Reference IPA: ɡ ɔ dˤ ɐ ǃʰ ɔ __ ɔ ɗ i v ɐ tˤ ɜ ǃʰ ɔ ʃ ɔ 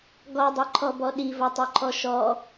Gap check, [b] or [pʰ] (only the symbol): b